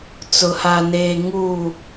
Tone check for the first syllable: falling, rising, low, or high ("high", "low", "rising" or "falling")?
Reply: low